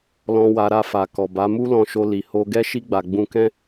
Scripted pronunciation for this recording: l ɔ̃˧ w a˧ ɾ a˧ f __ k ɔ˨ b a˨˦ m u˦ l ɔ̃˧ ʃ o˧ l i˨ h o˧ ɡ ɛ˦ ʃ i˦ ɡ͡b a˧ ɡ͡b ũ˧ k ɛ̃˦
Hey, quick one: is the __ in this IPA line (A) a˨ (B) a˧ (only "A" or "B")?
A